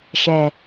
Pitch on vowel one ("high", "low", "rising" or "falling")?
low